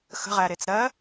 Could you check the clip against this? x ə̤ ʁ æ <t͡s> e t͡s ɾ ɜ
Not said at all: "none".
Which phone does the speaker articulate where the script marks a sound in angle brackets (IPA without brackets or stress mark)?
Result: ɾ